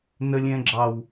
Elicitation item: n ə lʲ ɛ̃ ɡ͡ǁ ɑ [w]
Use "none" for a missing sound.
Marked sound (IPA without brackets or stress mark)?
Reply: w